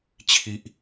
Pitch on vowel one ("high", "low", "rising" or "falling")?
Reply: high